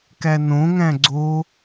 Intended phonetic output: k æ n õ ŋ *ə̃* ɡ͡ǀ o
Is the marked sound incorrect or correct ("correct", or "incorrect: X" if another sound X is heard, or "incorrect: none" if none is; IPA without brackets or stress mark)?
incorrect: æ̃